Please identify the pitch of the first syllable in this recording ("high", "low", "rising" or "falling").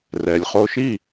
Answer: low